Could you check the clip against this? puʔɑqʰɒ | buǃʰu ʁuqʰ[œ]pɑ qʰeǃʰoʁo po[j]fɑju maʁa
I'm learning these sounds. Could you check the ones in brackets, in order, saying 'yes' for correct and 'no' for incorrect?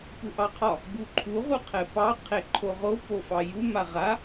no, no

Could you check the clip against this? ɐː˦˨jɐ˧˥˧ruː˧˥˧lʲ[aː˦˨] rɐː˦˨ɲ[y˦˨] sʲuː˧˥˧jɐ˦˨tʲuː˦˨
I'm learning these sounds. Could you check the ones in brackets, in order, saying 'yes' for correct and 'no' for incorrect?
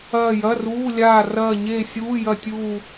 yes, no

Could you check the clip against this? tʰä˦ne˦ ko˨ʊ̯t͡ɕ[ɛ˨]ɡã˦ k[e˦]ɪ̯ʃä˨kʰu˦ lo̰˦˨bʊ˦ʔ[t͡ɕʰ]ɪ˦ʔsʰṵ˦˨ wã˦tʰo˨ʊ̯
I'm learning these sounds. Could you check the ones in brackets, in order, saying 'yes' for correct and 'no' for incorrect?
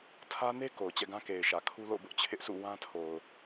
no, no, yes

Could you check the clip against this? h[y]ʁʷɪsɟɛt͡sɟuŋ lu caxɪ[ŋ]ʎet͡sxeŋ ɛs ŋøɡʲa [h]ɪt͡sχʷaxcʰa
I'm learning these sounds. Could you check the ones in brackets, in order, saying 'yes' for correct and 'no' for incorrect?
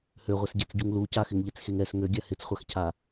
no, yes, yes

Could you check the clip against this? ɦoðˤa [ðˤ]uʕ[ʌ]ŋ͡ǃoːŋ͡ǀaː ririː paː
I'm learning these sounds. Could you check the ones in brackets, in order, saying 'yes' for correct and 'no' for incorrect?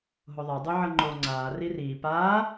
no, yes

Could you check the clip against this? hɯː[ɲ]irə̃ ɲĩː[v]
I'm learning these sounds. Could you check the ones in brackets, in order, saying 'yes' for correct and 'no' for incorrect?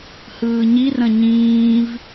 yes, yes

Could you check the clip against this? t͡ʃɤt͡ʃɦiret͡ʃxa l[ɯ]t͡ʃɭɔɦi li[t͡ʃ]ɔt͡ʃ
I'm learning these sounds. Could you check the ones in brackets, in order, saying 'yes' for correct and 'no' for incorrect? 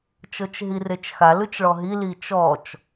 yes, yes

